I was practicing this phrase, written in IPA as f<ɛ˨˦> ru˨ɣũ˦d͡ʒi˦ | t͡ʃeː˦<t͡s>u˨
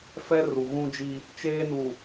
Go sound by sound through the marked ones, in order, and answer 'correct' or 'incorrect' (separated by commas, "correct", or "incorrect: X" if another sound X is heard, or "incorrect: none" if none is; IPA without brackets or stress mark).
incorrect: ɛ˦, incorrect: n